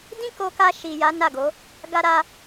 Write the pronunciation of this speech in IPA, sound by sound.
d ĩ˦ k o˧ k a˧ ʃ i˨ j a˨˦ n a˦˨ ɡ o˨˦ | ɡ a˧ ɾ a˧

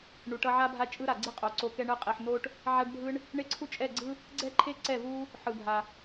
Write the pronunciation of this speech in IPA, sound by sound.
ɳ u˨ ʈ ʌ˧ ʕ a˦ bʱ a˦ t͡ʃʼ ɯ˦ ɾ a˨ ɡ͡ǀ i˦ qʼ o˨ ǀ o˧ k ɛ˧ ɳ ɯ˧ qʼ i˨ ħ n o˦ ʈ | ʕ a˦ ɖ bʱ ɯ˦ ɳ | ɳ e˦ ǀʰ u˦ t͡ʃʼ ɛ˦˨ ɡ͡ǀ ɯ˦ | ɡ͡ǀ ɛ˦ ǃʰ e˦ ǀ ɛ˦˨ v u˦ | ħ ɯ˨ bʱ a˨

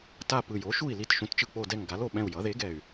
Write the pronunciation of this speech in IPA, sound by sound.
t a˦˨ p ɯ˨˩ j o˩˥ ʃ u˦˨ i̯ l i˦˨ t ʃ ũ˩˥ t t͡ʃ ɯ˨˩ k͡p o˦˨ d ɛ˦˨ ŋ ɡ a˩˥ l o˦˨ ɓ ɛ̃˦˨ u̯ j ʌ˩˥ ð e˩˥ ɡ ɛ˨˩ y̯

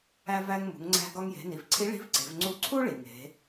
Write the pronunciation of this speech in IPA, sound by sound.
æ˧ v æ˧ ŋ m ṳ˩˧ ŋ ŋ͡ǀ æ̤˧ ɡ ɒ˧ ŋ j e̤˩˧ n i˩ v ǀʰ i˧˥ ɭ i̤˧˥ v ǀ e̤˩˧ v ŋ͡ǀ u˧˥ ǀʰ u˥ ɭ i˩ ŋ e̤˩˧

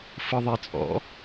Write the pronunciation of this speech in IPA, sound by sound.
f ɯ ðˤ e t͡sʼ ɔ̰

